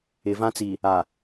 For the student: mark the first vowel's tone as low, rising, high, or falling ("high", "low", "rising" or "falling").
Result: low